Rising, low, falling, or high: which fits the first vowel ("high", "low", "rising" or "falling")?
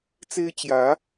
high